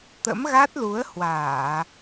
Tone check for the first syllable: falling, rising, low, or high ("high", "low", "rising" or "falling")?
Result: rising